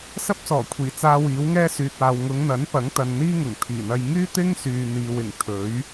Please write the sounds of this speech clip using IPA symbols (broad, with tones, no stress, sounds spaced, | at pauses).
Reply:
s ɐ˥ p̚ s ɔː˨˩ kʷʰ iː˨˩ t͡s aː˧ w iː˨˥ w ŋ ɛː˥ s yː˨ t̚ aː˨ w ŋ ʊ˨˧ ŋ n̪ ɐ˨˥ n p ɐ˨˥ ŋ t̪ ɐ˨ n n̪ iː˥ ŋ ʊ˨˩ ŋ t̪ʰ iː˨˩ n̪ ɐ˧ j ŋ yː˥ t̪ ɪ˥ ŋ s yː˨ n̪ iː˨ w ɪ˨˩ ŋ t̪ʰ ɵ˨˥ ɥ